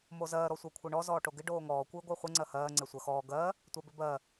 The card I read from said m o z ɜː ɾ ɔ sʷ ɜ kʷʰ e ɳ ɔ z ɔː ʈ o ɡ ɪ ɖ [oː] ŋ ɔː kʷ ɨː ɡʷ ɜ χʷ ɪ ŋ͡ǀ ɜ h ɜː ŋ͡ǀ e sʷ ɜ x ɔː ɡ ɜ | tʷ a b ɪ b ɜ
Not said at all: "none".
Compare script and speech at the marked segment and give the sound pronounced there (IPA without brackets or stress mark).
oː